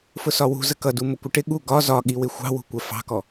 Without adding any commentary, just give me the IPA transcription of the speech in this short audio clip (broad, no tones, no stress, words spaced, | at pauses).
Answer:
fʊsɒwṳ zəkʌdu mʊkʷɪʈɪ ɠu ɡɒ zɒɠiwɪ xʷɑ̤wṳ kʷɜfɑ̤kɔ